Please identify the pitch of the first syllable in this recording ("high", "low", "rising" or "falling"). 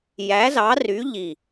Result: rising